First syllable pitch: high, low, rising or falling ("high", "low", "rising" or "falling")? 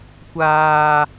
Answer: high